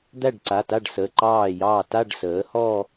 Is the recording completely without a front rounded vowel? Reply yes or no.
yes